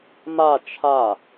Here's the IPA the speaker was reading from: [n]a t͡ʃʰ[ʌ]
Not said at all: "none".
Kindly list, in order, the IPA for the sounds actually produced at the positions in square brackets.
m, a

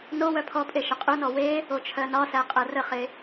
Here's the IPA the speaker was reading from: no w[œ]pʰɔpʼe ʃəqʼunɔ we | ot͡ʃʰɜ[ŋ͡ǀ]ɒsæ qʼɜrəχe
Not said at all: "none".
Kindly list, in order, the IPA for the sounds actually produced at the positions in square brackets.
œ, n

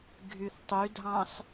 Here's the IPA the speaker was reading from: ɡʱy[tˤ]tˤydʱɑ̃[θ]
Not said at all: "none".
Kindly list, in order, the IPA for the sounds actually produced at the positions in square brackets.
θ, s

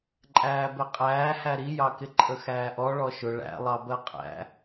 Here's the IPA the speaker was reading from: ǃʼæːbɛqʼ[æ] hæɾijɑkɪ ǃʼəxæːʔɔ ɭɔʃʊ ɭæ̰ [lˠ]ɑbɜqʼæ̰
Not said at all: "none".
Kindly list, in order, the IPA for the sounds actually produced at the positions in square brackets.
æː, lˠ

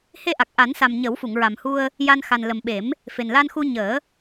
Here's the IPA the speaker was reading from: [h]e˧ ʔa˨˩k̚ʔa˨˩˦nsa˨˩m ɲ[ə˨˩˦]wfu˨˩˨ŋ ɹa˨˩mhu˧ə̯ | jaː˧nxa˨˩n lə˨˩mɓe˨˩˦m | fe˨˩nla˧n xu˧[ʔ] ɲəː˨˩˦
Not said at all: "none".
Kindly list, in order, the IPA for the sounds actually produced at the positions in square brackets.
h, ə˨˩˦, none

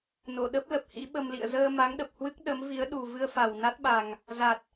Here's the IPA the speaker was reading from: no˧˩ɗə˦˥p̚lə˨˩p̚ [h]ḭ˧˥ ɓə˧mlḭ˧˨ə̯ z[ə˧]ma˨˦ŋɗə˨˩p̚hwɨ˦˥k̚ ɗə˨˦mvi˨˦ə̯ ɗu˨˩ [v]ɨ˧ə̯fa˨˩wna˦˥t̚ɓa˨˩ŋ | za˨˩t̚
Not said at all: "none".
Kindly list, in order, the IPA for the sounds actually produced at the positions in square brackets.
h, əː˧, v

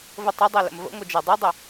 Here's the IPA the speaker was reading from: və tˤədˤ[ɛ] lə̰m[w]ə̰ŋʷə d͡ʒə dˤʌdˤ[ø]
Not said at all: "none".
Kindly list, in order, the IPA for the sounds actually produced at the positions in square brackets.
ɛ, v, ə

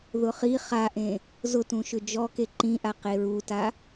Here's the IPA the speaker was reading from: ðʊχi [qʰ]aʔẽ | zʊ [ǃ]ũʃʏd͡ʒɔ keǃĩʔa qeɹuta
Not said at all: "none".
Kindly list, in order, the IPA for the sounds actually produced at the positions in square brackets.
χ, t

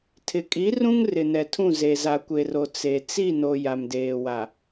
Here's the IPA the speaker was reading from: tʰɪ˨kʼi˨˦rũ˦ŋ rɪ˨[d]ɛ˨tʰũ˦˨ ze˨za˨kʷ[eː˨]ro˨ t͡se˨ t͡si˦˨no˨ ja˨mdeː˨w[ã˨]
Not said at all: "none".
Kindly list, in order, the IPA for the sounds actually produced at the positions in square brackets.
n, e˨, a˨

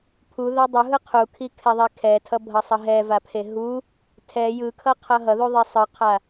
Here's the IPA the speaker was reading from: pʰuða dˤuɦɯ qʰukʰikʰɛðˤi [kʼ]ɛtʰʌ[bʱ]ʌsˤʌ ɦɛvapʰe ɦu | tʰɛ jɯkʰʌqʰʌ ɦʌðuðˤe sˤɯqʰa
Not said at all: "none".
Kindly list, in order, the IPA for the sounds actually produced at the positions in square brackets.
kʰ, bʱ

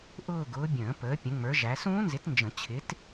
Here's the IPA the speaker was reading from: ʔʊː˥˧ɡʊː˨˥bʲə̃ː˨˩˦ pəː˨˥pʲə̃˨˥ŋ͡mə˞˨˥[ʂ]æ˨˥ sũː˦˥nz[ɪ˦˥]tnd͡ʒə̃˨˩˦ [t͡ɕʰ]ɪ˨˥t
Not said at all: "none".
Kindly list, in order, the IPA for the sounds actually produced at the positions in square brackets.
ʒ, ɪ˨˥, t͡ɕʰ

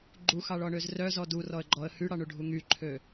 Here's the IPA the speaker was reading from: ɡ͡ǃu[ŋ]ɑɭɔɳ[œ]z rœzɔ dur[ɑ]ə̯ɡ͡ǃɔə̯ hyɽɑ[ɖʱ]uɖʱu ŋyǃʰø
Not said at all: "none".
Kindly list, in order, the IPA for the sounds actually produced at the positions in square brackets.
x, ø, ɔ, ɳ

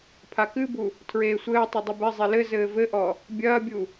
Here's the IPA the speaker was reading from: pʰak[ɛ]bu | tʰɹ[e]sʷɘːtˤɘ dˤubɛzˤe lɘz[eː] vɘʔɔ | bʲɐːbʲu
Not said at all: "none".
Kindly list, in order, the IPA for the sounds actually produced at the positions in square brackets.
ɨ, eː, ɘː

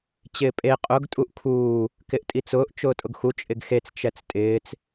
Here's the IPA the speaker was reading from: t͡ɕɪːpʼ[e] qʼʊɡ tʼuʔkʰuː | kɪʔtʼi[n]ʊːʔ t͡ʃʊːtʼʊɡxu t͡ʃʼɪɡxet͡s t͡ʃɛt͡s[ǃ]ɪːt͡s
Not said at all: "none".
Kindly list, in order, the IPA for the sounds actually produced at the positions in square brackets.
e, t͡s, tʼ

